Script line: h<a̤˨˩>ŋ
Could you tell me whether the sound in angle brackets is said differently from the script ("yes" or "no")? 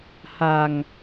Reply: no